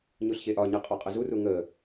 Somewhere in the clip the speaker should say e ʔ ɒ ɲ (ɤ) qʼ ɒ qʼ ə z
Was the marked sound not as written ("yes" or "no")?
no